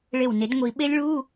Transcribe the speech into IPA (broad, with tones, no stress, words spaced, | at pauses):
ɭe˧˩wne˨˩˦d ŋʷi˨˩˦ ɓe˦˥lʲɭuː˧˥˧